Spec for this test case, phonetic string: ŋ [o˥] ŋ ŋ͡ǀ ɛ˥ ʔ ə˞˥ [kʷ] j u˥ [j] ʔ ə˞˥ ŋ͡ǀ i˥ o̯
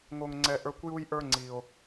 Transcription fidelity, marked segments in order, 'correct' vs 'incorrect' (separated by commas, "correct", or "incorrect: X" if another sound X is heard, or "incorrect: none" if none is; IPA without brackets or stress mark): correct, correct, correct